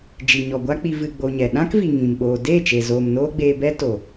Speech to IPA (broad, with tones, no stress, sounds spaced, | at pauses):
d͡ʒ i˨ ɲ ɔ˨ ɡʷ a˦ k͡p i˧ v ɨ˧ ɡ͡b o˧ ɲ ɛ˨ ɗ ã˦ k v i˨ ŋ ĩ˨ m ɓ oː˧ d eː˦˨ t͡ʃ e˨ z oː˨ m n oː˦ ɡ͡b eː˧ b ɛ˦ t o˨